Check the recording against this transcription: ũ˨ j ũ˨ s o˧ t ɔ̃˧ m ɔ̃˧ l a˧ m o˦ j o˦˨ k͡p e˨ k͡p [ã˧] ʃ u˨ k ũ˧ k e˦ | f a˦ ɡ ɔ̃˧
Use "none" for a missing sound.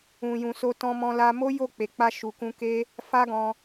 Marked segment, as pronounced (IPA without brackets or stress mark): a˧